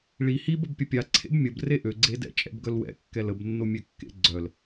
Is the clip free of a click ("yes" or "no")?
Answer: no